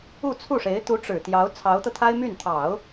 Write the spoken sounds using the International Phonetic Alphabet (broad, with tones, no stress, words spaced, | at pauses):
u˥˧t͡sʰu˥˩ʂe˧˥ɪ̯ t̪u˧˥ʈ͡ʂɻ̩˨˩t̪jɑ˧˥ʊ̯ t͡sʰɑ˧˥ʊ̯t̪ɤ˧t̪ʰa˥ɪ̯ my˥˩n t̪ʰɑ˨˩˦ʊ̯